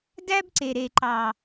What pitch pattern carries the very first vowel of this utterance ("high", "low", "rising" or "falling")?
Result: high